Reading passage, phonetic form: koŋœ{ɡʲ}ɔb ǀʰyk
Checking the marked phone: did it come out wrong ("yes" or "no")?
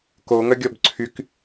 no